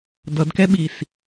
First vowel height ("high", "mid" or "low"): mid